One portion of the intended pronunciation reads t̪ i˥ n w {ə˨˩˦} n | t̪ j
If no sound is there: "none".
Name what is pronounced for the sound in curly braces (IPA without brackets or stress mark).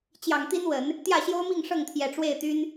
ə˨˩˦